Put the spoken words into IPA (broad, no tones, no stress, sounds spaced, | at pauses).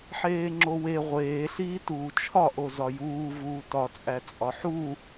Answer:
ħ eː ŋ͡ǁ o w e ʁʷ eː ɬ iː t uː t͡ʃʰ ɒ ʔ o z ɒ j uː v uː t ɒ t͡sʼ æ t͡sʼ ɒ ħ u